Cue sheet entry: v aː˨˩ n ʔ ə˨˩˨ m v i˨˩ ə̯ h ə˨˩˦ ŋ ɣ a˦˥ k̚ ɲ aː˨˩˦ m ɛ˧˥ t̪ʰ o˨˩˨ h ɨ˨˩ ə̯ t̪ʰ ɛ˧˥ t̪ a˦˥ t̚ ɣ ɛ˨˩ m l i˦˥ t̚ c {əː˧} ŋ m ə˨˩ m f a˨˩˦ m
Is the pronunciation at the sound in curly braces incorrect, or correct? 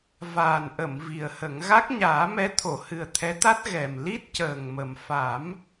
incorrect